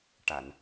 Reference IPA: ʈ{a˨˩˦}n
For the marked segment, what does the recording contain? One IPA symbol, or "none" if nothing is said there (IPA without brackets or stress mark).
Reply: a˨˩˨